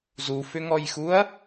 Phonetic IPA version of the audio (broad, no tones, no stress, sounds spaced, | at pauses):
z u f ʏ ŋ ɔ j x u ɐ̯